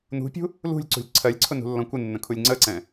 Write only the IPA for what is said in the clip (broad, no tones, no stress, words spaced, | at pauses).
nṳpʲṳ | lṳlʲǀṳlʲ ǀʰɜlʲǀʰʊnṳlːɔ̃ kʷɪnːə̃kʰulʲ ŋ͡ǀəǀɛ̃